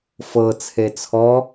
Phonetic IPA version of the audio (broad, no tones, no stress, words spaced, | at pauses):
fɤ t͡sʰet͡sʰɔ